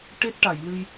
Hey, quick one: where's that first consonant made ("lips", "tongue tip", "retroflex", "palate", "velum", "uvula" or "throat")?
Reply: retroflex